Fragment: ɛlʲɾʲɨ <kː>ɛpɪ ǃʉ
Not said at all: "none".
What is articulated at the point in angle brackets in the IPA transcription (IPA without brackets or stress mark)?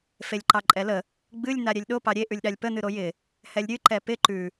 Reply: ǃ